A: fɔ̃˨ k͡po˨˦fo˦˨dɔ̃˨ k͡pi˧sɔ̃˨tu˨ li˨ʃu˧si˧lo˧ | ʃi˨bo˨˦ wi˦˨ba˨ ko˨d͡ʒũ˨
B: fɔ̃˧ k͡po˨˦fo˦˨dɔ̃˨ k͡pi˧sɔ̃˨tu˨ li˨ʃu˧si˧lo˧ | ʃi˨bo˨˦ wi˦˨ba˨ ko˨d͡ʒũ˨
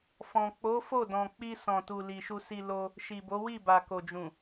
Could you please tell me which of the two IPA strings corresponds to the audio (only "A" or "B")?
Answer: A